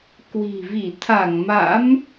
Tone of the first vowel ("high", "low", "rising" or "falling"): low